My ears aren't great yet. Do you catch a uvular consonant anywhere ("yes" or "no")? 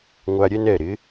no